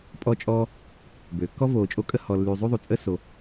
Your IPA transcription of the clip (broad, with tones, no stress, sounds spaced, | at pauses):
pʼ ɔ˦ t͡ʃʼ ɔː˦ | b øː˩ kː ɔ˥ v oː˨ t͡ʃʼ o˦ kʼ ə˥ h ɔ˨ lː yː˨ zˤ y˥ ðˤ u˩ t͡sʼ ə˥ s o˨